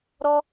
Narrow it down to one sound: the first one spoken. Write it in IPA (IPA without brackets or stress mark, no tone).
ɾ